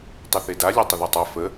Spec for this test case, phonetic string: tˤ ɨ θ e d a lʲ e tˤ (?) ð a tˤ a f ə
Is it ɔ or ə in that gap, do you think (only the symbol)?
ə